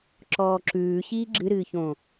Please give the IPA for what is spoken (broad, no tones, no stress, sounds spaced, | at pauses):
ǁ ɔː ǁ ʉː ɕ iː ɡ͡ǁ ɨ ɾ ɨː ç õ